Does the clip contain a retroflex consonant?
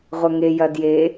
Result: no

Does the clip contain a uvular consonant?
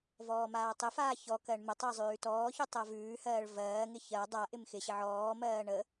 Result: no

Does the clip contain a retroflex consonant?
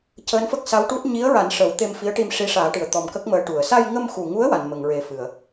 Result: yes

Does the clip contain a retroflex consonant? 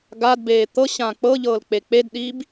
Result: no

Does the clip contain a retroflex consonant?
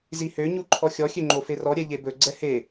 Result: no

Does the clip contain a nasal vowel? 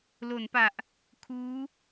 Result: no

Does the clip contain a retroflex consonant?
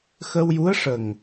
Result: yes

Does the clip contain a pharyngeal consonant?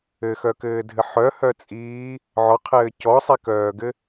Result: yes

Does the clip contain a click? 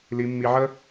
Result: no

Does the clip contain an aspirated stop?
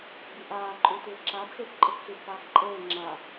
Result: no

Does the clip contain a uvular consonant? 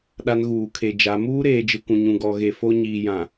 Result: no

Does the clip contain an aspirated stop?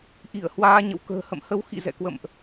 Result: no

